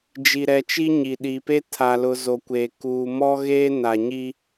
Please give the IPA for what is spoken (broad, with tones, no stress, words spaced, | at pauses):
d͡ʒi˨ɾɛ˨t͡ʃi˦ ɲi˨ɗiː˨pe˦ tʰa˨lʊ˨ zo˨kʷeː˨ kuː˨mɔ˦ɣeː˦ na˨ɲi˦